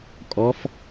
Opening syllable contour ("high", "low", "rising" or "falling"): rising